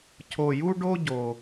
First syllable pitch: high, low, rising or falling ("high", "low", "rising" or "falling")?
low